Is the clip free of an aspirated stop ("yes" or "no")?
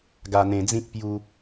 yes